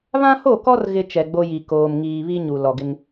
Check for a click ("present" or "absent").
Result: absent